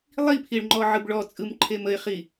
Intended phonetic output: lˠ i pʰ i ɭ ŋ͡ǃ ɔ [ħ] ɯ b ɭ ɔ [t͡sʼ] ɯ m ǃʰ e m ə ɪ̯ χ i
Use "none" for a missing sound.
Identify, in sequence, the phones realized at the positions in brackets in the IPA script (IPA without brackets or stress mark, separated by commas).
ʕ, t͡sʼ